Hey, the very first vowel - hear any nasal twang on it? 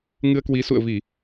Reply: no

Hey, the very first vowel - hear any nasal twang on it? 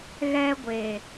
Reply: no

